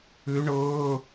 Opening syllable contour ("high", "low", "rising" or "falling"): rising